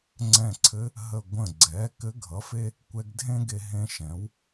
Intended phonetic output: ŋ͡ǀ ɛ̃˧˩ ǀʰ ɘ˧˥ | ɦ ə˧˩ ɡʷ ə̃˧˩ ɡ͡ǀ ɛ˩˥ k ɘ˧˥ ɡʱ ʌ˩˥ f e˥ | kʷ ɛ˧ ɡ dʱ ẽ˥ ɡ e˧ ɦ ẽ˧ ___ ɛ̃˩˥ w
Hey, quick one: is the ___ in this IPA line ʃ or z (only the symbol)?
ʃ